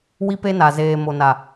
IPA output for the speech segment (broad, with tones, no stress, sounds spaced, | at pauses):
w i˦ p e˦ n a˨ z eː˨ m o˨ n a˨